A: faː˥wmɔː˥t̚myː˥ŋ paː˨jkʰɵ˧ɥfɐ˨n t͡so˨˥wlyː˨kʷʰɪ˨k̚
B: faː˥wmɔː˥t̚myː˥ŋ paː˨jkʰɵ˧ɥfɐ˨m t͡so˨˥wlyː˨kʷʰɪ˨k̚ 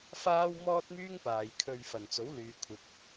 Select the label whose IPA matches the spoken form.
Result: A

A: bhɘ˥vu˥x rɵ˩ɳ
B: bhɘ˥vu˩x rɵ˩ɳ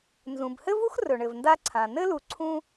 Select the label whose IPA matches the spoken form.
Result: A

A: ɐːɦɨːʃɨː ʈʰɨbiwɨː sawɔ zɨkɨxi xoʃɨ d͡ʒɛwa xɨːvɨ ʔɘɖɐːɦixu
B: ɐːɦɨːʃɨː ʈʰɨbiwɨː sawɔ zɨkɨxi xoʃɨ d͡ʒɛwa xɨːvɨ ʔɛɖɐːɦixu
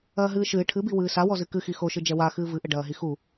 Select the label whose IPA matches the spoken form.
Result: A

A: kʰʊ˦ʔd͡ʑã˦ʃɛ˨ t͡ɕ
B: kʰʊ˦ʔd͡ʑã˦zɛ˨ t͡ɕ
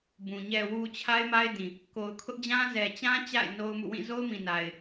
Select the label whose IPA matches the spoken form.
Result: B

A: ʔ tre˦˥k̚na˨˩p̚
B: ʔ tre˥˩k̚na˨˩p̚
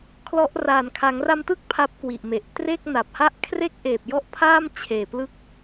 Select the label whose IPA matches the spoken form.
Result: B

